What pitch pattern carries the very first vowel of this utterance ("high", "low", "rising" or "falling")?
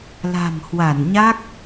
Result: low